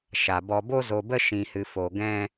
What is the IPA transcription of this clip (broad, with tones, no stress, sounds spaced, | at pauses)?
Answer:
ʃ a˨ b ɔ˧ b o˧ z o˨ b ə˧ ʃ ĩ˨ h ɨ˨ f o˨ ɡ ɛ̃˧